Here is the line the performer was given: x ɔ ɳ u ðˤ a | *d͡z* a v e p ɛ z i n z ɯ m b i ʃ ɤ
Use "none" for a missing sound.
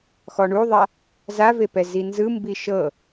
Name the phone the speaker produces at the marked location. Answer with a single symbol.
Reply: z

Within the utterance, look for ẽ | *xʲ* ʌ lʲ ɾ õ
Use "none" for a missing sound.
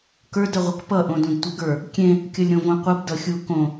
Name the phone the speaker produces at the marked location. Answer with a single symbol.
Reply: kʲ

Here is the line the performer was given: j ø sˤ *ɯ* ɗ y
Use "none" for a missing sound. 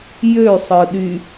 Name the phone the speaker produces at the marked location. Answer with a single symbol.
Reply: ɯ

